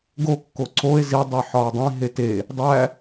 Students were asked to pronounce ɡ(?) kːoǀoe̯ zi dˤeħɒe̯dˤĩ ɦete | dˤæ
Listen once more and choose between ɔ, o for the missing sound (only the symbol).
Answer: o